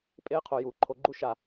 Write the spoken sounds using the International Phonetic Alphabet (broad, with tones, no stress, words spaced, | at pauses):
pʼeː˦qʰo˨ juː˨ǃʰo˧ɡ͡ǃu˦ ʃa˨